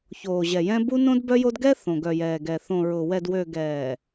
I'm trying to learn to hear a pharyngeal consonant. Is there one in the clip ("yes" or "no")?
no